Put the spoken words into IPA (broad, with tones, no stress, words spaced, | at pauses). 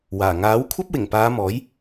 waː˨˩ ŋaː˨˥w kʷʰɐ˥p̚wɪ˨˩ŋpaː˨˧ mɔː˨˥j